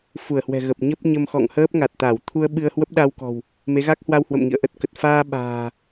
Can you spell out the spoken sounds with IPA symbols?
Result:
f u˧˩ ə̯ h w ɛ̤˨˩ ɣ ə˨˩ p̚ ɲ ə˦˥ p̚ ɲ ə˧ m x ɔ̰˧˨ ŋ h əː˦˥ p̚ ŋ a˨˩ t̚ t̪ a˧˩ w t̪ʰ u˧ ə̯ ɓ ɨ˧ ə̯ h w ə˦˥ p̚ ɗ a˧ w k ɔ̤˨˩ w | m e˨˦ ɣ a˦˥ k̚ h w a˧ w h w ə̰˧˨ m ŋ ḭ˧˨ ə̯ ʔ ə˦˥ t̚ k ə˨˩ t̚ f aː˧ ɓ a̤ː˨˩

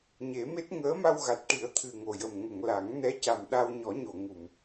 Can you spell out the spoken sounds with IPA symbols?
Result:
ɲ e˨˩˦ m e˦˥ t̚ ŋ əː˧˥ m a˧ w ɣ a˨˩ t̚ ʈ i˨˩˦ ə̯ t̪ʰ ɨ˨˩ ŋ o˨˩ j ə˨˩ m ŋ ə˨˩˨ ŋ l a˨˩˦ ŋ n ɛ˧˥ c a˨˩ m ɗ a˧ w ɲ ɔ˨˩˦ ɲ o˨˩˨ ŋ u˨˩˨ m

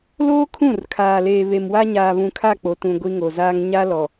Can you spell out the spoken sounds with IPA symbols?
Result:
l oː˦ kʰ ũ˦˨ r kʰ aː˨ l eː˨ β e˨ m w a˦ ɲ aː˨ β ũ˨ kʰ a˦˨ k͡p o˨ t ũ˨ ɡʷ i˦ ŋ o˨ z aː˦ ŋ ɲ a˦ l ɔ˨

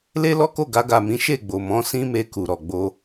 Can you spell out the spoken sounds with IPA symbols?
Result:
l e˦ l ɔ˦ k o˦˨ ɡ a˧ ɡ a˨ m ĩ˨˦ ʃ e˦˨ ɡ͡b o˨ m ɔ̃˨˦ s ĩ˦ m e˧ k u˨ ɾ ɔ˨ ɡ͡b o˧

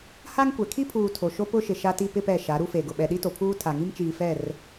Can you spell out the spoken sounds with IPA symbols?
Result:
h a˦ ŋ kʷ ɛ˨ kʰ i˦ pʰ uː˨ tʰ o˨ ʃ o˦ p ʊ˦ ʃ ɪ˨ ʃ a˦ t i˦ p ɪ˦ p ɛ˦˨ ʃ a˨˦ ɾ u˦ f e˨ ɡ ʊ˨ ɓ ɛ˨ ɗ i˦ t o˨ pʰ uː˦ tʰ a˨ ŋ i˦ m t͡ʃ iː˨ f ɛ˦˨ r

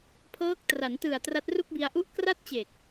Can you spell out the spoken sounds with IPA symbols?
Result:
pʰ ɤː˦˥ k̚ t r a˩˦ n t ɯ˨˩ a̯ t r a˦˥ t̚ r u˥˩ k̚ b i˧ a̯ ʔ u˥˩ ʔ k r a˥˩ t̚ t͡ɕ e˨˩ k̚

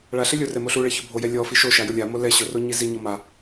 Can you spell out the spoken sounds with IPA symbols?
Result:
ɭ a ɬ ɛ lʲ ʊ r ɛ m o ɬ u ɭ ɛ ç o bʱ o j ɛ lʲ ɔ f i ʃ o ʃ a j ʊ lʲ a m o l ɛ ɕ ʊ r o ɲ i z i ɲ ɔ m a

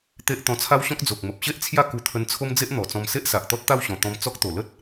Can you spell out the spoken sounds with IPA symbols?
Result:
t̪ e˦ ʔ t̪ ɔ̃˧ t͡sʰ a˦ w ɕ ɔ̃˦ k̚ d͡z o˨ k̚ m ə˨ p̚ ɕ e˦ ʔ t͡sʰ j a˥˧ k u˧ t̪ʰ ə˧ n t͡sʰ o˦ m d͡z e˦ ʔ n̪ ɔ˨˩ t͡s ɔ̃˧ m s e˦ ʔ s a˨ ʔ t̪ ɔ˦ t̚ t̪ a˥˧ w ɕ ɔ̃˨˩ t̪ ɔ̃˧ m t͡s ɔ˦ k̚ t̪ o˨˩ l ə˦ t̚

